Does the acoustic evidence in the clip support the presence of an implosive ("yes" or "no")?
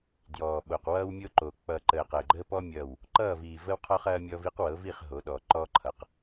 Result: yes